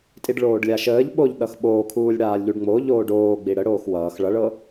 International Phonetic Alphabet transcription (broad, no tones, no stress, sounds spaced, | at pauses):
tʼ i ɖ ɭ oː ɖ lʲ a ʃ əː ʎ ɓ o ʎ ɗ ʌ x ɓ oː kʰ uː lʲ ɽ aː lʲ ʎ u ɖ ŋ͡m o ʎ oː ɖ oː ɡ͡b i ɽ ə ɽ oː x w ʌː x ɭ ʌ ɭ ɤ